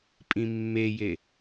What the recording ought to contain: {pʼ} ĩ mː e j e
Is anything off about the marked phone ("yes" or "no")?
no